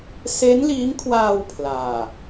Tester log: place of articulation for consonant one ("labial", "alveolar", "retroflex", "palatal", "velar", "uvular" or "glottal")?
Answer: alveolar